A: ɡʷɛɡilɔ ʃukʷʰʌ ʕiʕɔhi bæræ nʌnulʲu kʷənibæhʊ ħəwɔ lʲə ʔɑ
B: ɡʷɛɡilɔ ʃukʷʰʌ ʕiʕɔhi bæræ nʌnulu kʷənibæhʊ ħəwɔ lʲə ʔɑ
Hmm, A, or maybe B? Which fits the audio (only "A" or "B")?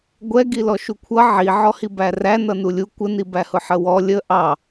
A